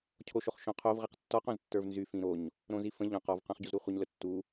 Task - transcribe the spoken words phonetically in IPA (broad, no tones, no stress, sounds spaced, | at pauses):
cʰ o ʃ o χ ʃ õ qʰ o v ʁ i q tː ɔ q õ z tː ə˞ v n z y f ĩ ɾ o ɲ | ɾ õ z i f ə̃ ʎ œ̃ q ɔ v q œ̃ χ ɟ u z ɾ u χʷ ə ɲ l ə tː u